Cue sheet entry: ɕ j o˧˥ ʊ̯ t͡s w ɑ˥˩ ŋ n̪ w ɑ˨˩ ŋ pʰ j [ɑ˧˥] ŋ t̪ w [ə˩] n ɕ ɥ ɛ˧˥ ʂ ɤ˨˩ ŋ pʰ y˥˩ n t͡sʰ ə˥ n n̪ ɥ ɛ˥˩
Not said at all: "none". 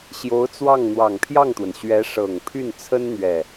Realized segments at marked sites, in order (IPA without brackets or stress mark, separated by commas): ɑ˥˩, ə˩